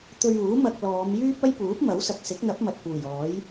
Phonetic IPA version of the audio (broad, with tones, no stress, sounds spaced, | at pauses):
t̪ ɵ˧ ɥ uː˨˥ m ɐ˧ k̚ l ɔː˨˧ m j yː˥ p̚ ɐ˥ j p uː˨˥ p̚ m ɐ˨˥ w s ɐ˨ k̚ s ɪ˨˥ k̚ n̪ ɐ˨˥ p̚ m ɐ˨ t̚ p uː˨˩ j ɔː˨˥ j